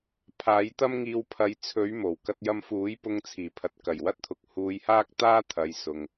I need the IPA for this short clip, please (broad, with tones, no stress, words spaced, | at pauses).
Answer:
pʰaː˨˥jt̪ɐ˥mŋiː˧w pʰɐ˨˥jt͡sʰɵ˨˥ɥ mo˨˩wkɐ˥t̚jɐ˥m fuː˨˥jpʊ˧ŋt͡sʰiː˨˩pʰɐ˨t̚ kɐ˨˩jwɐ˥t̚t̪ʰʊ˨k̚ huː˧jhaː˥k̚t̪aː˥ t̪ʰɐ˨˧jsʊ˨ŋ